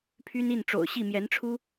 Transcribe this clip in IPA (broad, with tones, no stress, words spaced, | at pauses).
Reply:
pʰy˦n i˥˨nʈ͡ʂo̰˨˩ʊ̯ɕi˥˨ mjɛ˨˦nʈ͡ʂʰu˦